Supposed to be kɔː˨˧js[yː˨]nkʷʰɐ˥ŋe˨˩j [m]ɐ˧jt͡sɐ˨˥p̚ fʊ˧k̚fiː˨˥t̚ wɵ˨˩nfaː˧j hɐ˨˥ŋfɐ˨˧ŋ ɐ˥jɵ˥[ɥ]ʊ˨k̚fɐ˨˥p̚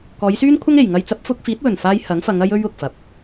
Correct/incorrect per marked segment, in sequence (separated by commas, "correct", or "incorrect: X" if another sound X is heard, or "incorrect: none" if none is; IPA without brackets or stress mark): incorrect: yː˥, incorrect: ŋ, correct